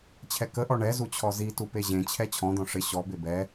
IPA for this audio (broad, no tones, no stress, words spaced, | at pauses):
t͡ɕʰɛkəʔɔ ɳɛ zut͡ɕʰɔzitu peʑẽt͡ɕʰɛ t͡ɕʰɔ̃d̪ɔ̃ ʂɪ ɕɔbe bɛ